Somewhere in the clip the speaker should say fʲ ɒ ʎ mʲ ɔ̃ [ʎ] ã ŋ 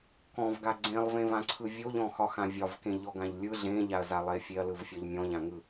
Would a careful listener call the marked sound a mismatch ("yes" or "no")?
no